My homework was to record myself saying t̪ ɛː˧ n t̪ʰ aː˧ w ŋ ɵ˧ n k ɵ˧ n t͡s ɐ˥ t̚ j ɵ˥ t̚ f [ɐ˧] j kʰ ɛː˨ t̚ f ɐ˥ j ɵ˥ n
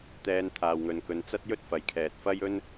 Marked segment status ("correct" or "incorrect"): incorrect